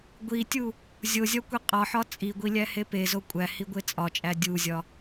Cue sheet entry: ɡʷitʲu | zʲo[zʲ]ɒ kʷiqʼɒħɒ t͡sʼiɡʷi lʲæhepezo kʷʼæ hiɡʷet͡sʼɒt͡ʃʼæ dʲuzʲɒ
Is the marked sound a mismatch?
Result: no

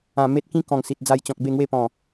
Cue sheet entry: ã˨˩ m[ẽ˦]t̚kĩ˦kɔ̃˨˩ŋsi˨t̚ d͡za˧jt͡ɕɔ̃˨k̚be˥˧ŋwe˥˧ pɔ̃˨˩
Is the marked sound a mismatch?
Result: yes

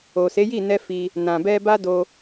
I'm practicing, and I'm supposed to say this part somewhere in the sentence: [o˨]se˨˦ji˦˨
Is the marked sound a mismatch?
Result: no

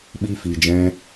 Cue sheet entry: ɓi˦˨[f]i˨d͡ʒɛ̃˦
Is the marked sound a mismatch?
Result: no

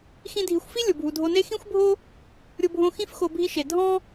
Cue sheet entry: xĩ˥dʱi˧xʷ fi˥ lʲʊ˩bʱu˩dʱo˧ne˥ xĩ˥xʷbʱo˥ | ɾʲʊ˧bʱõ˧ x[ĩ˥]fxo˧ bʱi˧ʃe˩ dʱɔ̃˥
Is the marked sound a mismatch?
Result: no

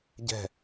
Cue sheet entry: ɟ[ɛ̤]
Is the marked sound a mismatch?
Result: no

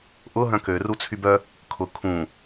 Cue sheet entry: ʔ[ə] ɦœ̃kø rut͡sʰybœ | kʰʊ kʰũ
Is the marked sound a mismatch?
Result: yes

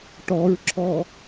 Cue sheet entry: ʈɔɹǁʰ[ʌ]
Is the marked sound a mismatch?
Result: yes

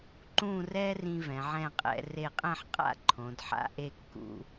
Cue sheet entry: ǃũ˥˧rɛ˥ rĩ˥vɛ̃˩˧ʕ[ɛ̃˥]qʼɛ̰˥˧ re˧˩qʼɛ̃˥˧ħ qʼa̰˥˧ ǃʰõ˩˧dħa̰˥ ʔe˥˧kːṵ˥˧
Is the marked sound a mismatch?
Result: yes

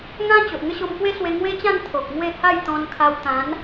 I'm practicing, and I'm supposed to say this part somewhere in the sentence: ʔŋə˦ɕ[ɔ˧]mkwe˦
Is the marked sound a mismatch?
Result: yes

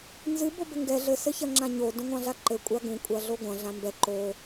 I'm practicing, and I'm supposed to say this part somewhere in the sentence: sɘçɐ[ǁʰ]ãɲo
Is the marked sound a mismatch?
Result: yes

